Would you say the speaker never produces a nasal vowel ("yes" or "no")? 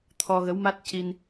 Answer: yes